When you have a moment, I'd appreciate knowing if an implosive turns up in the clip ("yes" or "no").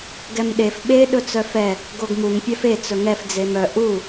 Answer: yes